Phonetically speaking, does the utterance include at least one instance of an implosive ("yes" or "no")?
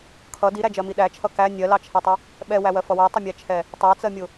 yes